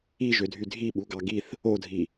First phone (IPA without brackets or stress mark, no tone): i